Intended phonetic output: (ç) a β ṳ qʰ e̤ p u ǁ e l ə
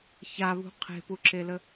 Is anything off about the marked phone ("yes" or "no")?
no